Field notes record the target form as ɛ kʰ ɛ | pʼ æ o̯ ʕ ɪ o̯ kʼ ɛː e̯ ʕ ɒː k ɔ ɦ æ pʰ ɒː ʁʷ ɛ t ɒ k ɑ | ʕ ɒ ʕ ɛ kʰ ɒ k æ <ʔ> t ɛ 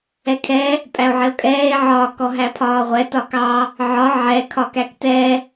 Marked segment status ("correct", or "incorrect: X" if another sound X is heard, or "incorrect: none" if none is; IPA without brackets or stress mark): incorrect: k